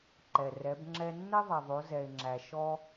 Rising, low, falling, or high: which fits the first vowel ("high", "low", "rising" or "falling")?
low